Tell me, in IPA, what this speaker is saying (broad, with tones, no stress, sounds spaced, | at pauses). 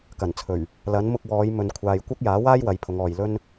k ɐ˨˩ n t͡sʰ ɵ˨˩ ɥ | l ɐ˨˥ n m ʊ˧ k̚ w ɔː˨˧ j m ɵ˨ n kʷʰ aː˨ j kʷ ɐ˥ k̚ j aː˨˥ w aː˥ j w ɐ˨˧ j pʰ ʊ˨˧ ŋ ɔː˨ j l ɵ˥ n